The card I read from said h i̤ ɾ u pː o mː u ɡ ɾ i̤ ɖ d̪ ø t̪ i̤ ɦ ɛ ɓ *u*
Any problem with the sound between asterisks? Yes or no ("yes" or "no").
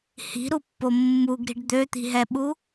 no